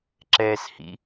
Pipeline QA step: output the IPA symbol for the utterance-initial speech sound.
ǁ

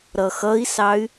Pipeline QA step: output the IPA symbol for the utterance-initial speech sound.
ɾ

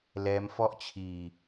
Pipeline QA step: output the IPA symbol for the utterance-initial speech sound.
l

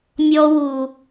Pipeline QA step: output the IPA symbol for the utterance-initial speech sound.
mʲ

